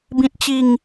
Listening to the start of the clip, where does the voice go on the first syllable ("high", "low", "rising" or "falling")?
low